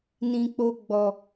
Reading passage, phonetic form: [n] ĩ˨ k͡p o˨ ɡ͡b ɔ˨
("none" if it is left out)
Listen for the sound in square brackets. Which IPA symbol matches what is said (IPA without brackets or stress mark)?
n